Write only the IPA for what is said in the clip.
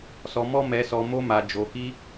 s ɔ˧ m ɔ˦ m ɛ˧ s ɔ˧ m o˧ m a˨ d͡ʒ o˨ k i˧

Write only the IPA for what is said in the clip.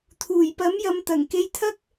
t̪ʰ uː˨˩ j p ɐ˨˥ m j ɐ˨˧ m t̪ ɐ˨˩ ŋ k e˧ j t̪ʰ ɐ˥ k̚

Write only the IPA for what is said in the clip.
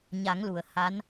ɲ a˨˩˦ ŋ l u˨˩˨ ə̯ h a˧˥ n

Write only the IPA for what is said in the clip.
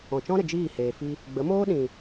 ɔ̃˨ t͡ʃ ɔ̃˦ ɾ ə˨ d͡ʒ iː˦˨ h eː˨ f i˧ | ɡ͡b ə˨˦ m oː˦ ɗ ĩ˨

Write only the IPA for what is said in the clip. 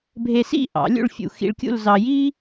bʱ e˧ s ḭ˥˧ ʔ ɑ̰˩˧ lʲ ṵ˥˧ ɭ fʲ ṵ˧ x ḭ˧ ɭ kʲ ṵ˥˧ l z ɑ˧ j i˥

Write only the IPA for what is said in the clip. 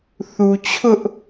θ u˨ t͡ɕʰ ʊ˦ ʔ

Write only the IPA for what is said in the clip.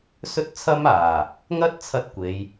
s ɵ˥ t̚ t͡sʰ ɐ˥ m aː˨˩ | ŋ ɐ˥ t̚ t͡sʰ ɐ˧ t̚ kʷ e˨˧ j

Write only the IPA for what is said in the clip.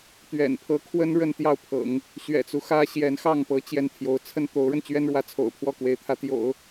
t̪ ɥ ɛ̰˨˩ n pʰ ɤ˧˥ kʰ w ə˥ n ɻ ə˥˧ n t̪ j ɑ˥˩ ʊ̯ pʰ ɤ̰˨˩˦ ŋ | ɕ ɥ ɛ̰˨˩ t͡s u˦ x ä˥ ɕ j ɛ˧˥ n x ɑ˥˩ ŋ p ɤ˧˥ t͡ɕ j ɛ˥˩ n t̪ʰ j o˧˥ ʊ̯ t͡sʰ ə˥ n t̪ o˧˥ ʊ̯ ɻ ə˧ n t͡ɕ ɥ ɛ˥ n ɻ w ä˧˥ t͡sʰ o̰˨˩ ʊ̯ pʰ w ɔ˥˩ k w e˧˥ ɪ̯ t̪ʰ ä˧˥ t̪ j o̰˨˩˦ ʊ̯

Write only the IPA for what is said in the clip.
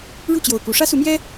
ɻ u˥˩ t͡ɕ j o˨˩ ʊ̯ k u˧˥ ʂ ä˥ s u˧˥ m j ɛ˥

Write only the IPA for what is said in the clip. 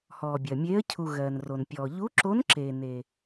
h ɔː˨ bʲ ɜ˨ mʲ eː˧˥ ə̯ cʰ u˨ ɣ ɜː˨ n r o˨ n pʲ ɔː˨ ʎ u˧˥ ǁ o˧˥ n ǁ e˨ n e˨

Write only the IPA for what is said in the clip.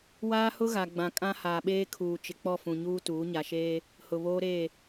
w aː˦ h ʊ˦ ɣ a˨ ɡ͡b ã˨ kʼ ã˦ h aː˨ ɓ eː˦ kʰ uː˨ t͡ʃ ɪ˨ k͡p ɔ˦˨ f ũ˨ ɲ uː˦ t uː˨˦ ɲ a˨ ʃ eː˦ | h ʊ˨ β oː˦ ɾ eː˦˨

